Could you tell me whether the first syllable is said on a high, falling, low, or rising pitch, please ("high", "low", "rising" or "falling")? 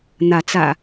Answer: rising